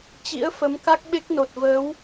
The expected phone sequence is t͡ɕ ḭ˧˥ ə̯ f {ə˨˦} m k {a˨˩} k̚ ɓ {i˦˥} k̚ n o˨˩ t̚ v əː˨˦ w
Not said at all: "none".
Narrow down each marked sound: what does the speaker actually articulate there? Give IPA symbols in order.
ə˨˦, a˦˥, e˦˥

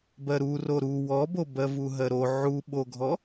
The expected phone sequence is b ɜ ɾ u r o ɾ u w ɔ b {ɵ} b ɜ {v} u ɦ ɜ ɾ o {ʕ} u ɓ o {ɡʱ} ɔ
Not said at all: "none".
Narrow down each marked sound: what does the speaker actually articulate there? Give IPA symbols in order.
o, v, ʕ, ɡʱ

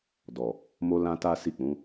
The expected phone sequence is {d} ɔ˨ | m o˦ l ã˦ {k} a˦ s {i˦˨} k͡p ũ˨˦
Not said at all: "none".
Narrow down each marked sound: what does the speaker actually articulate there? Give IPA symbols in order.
d, t, i˦˨

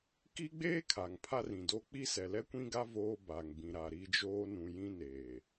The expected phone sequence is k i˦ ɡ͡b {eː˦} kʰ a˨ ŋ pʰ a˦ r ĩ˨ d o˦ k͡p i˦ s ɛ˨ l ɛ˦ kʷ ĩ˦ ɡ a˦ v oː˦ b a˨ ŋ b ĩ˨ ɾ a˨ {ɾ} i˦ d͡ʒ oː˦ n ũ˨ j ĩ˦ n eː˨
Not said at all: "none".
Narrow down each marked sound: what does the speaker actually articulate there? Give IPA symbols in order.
eː˦, ɾ

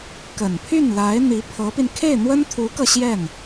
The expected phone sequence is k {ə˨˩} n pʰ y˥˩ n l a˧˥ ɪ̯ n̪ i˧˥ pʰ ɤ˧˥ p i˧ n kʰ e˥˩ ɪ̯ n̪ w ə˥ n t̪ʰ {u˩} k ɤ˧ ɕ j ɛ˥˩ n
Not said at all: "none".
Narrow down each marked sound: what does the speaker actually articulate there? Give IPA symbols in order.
ə˨˩, u˧˥

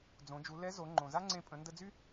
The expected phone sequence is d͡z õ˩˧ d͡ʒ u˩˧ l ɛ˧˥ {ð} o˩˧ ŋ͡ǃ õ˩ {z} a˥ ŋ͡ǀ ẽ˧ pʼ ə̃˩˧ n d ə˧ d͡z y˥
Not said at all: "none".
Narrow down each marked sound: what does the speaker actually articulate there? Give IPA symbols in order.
z, z

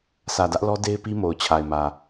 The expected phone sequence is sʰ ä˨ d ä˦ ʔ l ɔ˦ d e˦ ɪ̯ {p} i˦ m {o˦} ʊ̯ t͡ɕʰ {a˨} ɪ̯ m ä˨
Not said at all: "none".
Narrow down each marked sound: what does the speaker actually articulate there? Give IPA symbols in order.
p, o˨, a˨

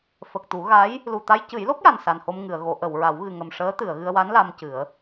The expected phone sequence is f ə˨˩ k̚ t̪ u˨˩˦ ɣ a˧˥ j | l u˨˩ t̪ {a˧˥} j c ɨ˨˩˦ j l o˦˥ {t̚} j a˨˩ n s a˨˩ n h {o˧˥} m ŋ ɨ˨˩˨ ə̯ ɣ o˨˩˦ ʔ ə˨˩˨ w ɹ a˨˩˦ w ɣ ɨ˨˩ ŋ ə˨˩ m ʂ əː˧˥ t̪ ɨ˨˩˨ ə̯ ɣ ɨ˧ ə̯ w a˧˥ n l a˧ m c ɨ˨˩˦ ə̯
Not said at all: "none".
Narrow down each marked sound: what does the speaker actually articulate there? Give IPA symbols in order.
a˧, k̚, o˧

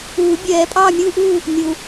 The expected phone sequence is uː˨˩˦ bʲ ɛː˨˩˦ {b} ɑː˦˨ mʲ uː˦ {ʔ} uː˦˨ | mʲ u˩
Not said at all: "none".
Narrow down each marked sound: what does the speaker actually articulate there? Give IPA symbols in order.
pʼ, ʔ

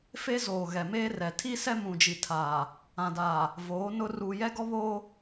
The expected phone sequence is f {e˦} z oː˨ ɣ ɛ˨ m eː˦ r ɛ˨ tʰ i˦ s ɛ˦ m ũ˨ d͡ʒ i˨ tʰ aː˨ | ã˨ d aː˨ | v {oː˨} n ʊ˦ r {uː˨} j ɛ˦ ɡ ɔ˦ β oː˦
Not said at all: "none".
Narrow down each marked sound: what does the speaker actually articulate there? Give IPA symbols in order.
e˦, oː˨˦, uː˨

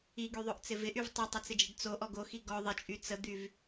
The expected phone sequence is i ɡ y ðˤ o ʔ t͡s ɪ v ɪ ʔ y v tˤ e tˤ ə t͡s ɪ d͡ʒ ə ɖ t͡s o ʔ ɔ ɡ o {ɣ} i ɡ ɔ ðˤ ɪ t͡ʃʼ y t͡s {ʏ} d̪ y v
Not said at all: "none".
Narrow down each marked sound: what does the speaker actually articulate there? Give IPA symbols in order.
x, ə

